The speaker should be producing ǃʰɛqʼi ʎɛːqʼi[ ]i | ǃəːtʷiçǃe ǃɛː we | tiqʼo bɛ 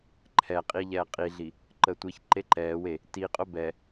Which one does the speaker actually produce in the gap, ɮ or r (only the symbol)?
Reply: ɮ